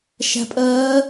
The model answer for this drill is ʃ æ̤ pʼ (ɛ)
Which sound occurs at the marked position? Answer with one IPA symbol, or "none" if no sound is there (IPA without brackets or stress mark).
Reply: ɜ